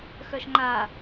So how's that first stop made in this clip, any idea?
click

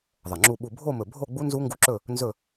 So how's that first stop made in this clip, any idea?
click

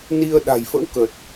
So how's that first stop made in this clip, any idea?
implosive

